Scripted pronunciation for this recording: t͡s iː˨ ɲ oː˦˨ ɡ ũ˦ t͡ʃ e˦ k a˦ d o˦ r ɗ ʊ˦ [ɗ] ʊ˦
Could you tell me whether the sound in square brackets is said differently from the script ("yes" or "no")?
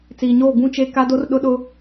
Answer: no